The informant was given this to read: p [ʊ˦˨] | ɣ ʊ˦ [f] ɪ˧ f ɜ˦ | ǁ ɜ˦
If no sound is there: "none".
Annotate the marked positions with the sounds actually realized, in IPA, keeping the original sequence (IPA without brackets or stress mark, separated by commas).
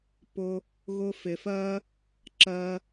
ʊ˦, f